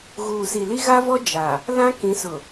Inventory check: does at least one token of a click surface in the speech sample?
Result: no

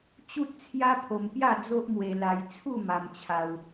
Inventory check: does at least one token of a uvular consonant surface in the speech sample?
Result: no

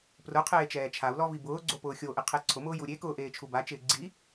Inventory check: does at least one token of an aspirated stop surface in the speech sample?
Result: yes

